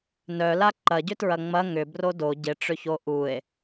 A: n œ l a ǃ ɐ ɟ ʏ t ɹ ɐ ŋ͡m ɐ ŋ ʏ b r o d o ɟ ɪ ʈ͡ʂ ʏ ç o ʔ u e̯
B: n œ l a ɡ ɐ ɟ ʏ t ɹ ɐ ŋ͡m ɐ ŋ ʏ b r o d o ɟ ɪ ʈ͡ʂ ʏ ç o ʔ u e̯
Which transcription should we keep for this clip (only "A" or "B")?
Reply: A